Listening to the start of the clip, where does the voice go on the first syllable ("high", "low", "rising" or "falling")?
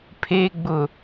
low